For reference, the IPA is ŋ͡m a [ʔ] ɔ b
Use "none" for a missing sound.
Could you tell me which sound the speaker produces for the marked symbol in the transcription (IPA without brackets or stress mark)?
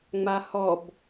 h